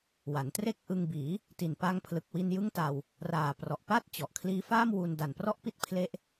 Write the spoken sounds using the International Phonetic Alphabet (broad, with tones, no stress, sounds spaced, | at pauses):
w a˩˦ n t r e˥˩ k̚ ʔ ɯ˧ ŋ b iː˩˦ | t i˨˩ n p a˧ ŋ pʰ l ɯ˨˩ k̚ w i˧ n j ɯ˥˩ ŋ t a˧ w | r aː˨˩ p r ɔ˨˩ ʔ p a˥˩ t̚ t͡ɕ ɔ˨˩ ʔ kʰ l iː˦˥ f aː˥˩ m w u˧ n d a˨˩ n p r ɔ˥˩ ʔ p i˦˥ t̚ pʰ l e˦˥ ʔ